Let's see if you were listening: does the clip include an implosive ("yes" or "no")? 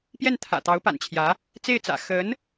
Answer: no